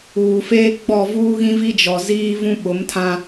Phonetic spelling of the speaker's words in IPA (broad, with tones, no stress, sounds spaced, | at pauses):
uː˨ f eː˦ ɡ͡b ɔ˦˨ v uː˦ ɣ ĩ˦ v i˦ d͡ʒ ɔ˨ z iː˦ v ũ˦ ɓ ʊ˨˦ m tʰ ã˦